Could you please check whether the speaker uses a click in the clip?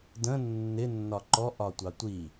yes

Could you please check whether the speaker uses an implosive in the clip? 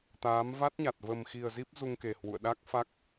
yes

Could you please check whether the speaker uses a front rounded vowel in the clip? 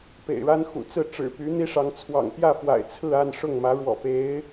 yes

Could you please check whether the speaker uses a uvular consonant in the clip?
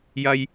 no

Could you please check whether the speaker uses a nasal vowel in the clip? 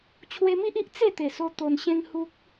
yes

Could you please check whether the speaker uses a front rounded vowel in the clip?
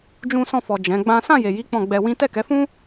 no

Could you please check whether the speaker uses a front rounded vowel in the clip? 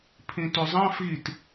yes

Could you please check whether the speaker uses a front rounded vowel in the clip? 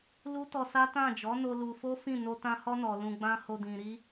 no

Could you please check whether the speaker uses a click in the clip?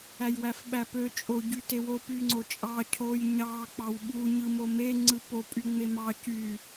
yes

